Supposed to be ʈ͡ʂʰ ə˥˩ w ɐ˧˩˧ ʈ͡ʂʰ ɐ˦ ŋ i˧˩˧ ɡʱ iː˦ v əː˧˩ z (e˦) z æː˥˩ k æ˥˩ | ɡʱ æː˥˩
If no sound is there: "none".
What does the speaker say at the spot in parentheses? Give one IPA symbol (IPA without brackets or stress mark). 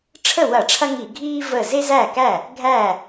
e˦